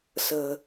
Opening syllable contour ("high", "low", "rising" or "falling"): low